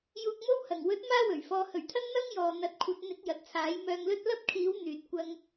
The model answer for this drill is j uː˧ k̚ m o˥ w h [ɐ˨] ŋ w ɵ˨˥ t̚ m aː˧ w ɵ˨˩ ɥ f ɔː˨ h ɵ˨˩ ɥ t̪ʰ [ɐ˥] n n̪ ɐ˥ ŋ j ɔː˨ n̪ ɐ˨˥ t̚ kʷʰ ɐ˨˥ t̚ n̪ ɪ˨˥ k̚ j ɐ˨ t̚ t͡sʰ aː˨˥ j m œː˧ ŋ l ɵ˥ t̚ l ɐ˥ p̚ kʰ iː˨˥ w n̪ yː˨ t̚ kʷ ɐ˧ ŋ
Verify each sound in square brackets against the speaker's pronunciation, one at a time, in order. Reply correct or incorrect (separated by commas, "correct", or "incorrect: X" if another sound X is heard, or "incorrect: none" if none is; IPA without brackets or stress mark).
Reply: incorrect: ɐ˨˩, correct